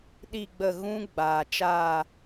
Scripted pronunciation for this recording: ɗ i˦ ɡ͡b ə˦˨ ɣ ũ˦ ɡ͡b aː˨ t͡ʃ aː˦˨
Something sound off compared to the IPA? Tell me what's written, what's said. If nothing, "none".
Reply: i˦ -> i˦˨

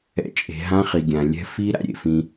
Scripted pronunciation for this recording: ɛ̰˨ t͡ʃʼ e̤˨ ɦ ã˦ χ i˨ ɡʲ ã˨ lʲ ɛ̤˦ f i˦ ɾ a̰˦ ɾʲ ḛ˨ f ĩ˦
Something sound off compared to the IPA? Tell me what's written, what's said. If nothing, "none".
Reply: none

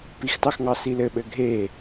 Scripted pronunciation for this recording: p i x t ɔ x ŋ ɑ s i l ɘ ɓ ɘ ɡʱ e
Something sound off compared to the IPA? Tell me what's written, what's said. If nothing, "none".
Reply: ɔ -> ɑ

